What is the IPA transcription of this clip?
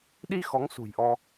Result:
ɗi˧ xɔ˨˦ŋsṳ˨˩jʔɔ˧

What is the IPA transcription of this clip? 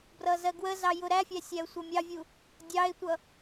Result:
brʌzɜɡwəzɑ jʊɾæfʲæ sʲæʊ̯sʷʌmʲɑvʲu | dʲɑɪ̯tʷʌ

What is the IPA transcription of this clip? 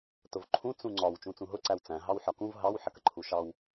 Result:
tʊvǃʰũ t͡sũŋ͡ǀɒw t͡ʃũt͡sũɦʊ ǀæwt͡sæ̃ ɦɑwħɒkũv ɦɑw ħəkəǃʰuʃɑw

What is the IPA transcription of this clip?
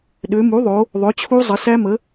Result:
ɗø˩˧mu˩˥ðˤo˩˧ | ðˤø˩˥t͡ɕʰu˦˥ zˤə˩˧sæ˦˥mə˩˥

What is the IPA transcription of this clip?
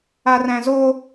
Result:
aræ̃zo

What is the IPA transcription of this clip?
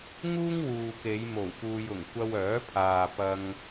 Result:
ŋuː˥ŋwuː˨ke˨˧j mo˨˩wpuː˨jʊ˨˩ŋ kʷɐ˧wœː˨˥pʰaː˨ pɐ˧ŋ

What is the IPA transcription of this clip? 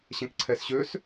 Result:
ɕɛ̃kǀʰɛsɕøs

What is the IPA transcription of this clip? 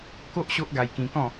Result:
ko˦ʔ ɕo˦ʔɡa˧jkĩ˧kɔ̃˥˧

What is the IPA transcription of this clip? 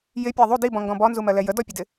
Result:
jɪpʲɜ ðˤu dibɔ̃ŋɡɔ̃ bɔnzumɜlɛ jədɔpʲədɪ

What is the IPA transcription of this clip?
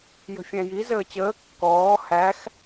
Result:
jə̤fʲæ̃ji zəːt͡ɕəː kːɔː hæx

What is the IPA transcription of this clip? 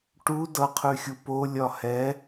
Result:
ʈu dʌqʰʉxʲu polʲɒ hɛ

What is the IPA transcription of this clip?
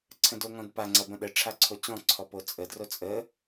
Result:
ǀʰə̃doŋɔ̃dpa ŋ͡ǀɐbə̃ɗə ʈ͡ʂʰaǀʰot͡ɕɔ̃ ǀʰɔpot͡sʼə drot͡sʼə

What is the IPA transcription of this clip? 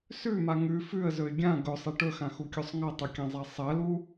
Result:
sʉma ŋʉ fʉə̯zɵɪ̯ ɡʲã ɡɵsˤe ʈɵxãxukʲusˤ ŋɐtˤukʲãzˤa sˤɐlu

